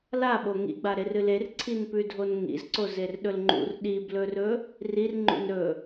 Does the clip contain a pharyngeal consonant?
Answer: no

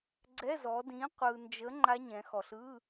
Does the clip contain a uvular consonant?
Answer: yes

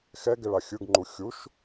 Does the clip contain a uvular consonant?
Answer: no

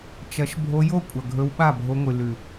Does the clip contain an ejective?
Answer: yes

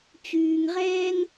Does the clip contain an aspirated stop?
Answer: no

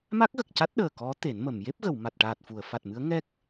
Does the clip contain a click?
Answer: no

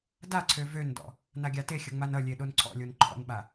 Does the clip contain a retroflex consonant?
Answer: no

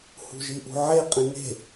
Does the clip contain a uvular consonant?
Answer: yes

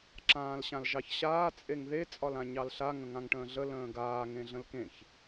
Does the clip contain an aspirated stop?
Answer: no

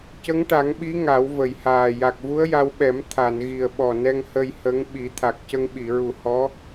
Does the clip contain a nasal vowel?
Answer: no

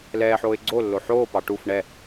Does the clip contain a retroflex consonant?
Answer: yes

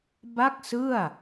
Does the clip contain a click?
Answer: no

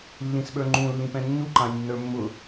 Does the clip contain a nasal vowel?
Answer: yes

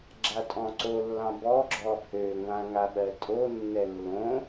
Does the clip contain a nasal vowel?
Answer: yes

